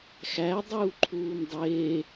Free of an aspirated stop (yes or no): no